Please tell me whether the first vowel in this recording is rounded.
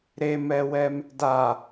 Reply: no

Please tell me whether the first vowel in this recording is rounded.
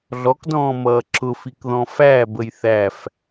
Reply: yes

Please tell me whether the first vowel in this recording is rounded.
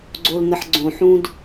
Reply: yes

